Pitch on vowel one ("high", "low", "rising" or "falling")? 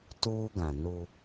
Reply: high